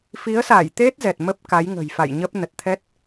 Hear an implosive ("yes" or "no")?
no